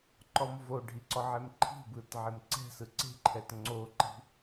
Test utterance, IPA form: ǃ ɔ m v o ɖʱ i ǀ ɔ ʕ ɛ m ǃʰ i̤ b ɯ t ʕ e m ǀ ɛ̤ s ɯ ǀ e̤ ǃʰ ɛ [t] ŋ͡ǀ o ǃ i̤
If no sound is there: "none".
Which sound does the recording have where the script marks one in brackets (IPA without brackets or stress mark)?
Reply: t